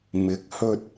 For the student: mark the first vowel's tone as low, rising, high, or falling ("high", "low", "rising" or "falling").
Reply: rising